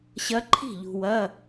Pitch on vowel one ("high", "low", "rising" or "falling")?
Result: rising